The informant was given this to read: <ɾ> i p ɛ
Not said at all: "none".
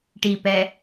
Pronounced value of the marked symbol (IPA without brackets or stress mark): ʈ